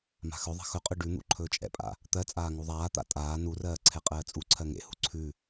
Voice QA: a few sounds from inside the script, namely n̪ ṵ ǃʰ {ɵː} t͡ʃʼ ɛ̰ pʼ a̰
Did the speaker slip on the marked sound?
no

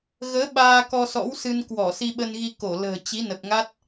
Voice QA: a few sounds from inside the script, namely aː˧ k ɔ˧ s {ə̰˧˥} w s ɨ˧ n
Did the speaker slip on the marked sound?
yes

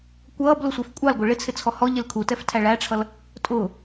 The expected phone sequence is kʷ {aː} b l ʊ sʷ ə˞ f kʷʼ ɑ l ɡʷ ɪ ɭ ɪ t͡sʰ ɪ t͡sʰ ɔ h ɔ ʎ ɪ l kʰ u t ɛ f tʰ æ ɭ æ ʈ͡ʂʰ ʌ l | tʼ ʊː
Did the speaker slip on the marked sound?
yes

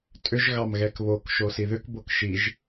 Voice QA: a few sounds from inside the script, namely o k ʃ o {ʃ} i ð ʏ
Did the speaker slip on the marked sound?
yes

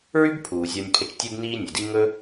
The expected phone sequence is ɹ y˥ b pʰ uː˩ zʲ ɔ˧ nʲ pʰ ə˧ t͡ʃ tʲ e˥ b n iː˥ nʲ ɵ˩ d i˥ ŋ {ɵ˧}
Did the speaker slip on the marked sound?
yes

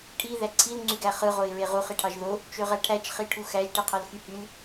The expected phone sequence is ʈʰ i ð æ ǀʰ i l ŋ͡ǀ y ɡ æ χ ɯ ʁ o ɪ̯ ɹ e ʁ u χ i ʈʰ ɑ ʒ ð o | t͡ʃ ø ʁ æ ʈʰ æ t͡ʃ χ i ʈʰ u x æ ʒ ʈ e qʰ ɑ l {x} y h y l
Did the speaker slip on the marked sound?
no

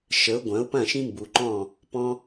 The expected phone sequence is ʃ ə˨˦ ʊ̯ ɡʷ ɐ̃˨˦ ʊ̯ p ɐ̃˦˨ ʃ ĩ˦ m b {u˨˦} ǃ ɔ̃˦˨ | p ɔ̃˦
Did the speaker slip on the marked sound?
yes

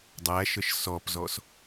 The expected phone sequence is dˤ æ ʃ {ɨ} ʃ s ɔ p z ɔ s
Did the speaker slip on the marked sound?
yes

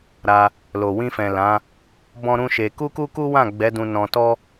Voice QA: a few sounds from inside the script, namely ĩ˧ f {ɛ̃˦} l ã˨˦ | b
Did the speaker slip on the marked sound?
yes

